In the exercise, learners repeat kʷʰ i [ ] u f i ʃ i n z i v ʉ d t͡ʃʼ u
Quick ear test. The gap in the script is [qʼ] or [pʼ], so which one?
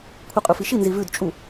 qʼ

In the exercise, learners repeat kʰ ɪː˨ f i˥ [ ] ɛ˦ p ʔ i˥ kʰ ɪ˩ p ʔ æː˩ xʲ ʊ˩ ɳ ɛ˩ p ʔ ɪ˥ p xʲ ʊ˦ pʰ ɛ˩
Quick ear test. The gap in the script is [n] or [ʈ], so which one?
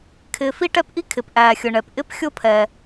ʈ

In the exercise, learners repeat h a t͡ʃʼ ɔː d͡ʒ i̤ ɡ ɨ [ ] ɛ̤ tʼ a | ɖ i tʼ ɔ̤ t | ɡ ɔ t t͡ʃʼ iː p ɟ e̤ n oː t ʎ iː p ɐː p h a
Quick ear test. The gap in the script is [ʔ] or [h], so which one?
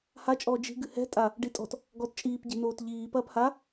h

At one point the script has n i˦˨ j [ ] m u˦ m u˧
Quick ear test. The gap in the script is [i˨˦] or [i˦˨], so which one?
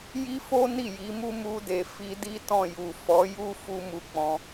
i˨˦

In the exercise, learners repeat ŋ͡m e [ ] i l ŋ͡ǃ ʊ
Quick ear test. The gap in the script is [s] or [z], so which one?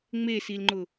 s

